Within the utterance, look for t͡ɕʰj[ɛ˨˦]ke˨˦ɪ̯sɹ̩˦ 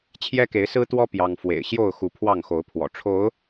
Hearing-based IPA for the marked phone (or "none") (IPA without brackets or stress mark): ɛ˦